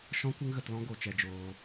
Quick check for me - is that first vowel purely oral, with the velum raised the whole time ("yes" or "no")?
no